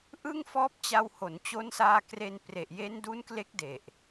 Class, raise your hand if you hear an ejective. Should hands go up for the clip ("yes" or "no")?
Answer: no